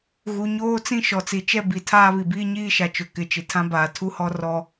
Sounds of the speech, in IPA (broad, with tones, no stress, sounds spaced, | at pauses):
ɣ u˨ ɲ oː˦ t͡s ĩ˦ ʃ ɔ˨ t͡s i˨ t͡ʃ ɛ˦ b i˨ tʰ aː˦ β i˨ b iː˦ ɲ iː˦ ʃ a˨ t͡ʃ ʊ˨ k ɪ˨ t͡ʃ ɪ˨ tʰ ã˦ b aː˨ tʰ u˦ h ɔ˦ r ɔ˦